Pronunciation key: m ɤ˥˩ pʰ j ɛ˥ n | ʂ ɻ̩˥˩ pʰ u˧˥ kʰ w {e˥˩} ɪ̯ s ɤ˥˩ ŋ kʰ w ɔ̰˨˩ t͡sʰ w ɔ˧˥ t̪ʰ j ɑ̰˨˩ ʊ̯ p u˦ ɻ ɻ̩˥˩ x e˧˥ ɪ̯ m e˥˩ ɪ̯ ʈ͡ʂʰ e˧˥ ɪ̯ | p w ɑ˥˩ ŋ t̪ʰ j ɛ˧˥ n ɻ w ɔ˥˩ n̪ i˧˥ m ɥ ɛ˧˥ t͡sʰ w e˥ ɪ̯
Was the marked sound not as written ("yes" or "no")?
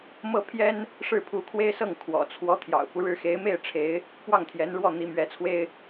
yes